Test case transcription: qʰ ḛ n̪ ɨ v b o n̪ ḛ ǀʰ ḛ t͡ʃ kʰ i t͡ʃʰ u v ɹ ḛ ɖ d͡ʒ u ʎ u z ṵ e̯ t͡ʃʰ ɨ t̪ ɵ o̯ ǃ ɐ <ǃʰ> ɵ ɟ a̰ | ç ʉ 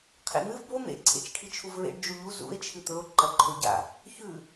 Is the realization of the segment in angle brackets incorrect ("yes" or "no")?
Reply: no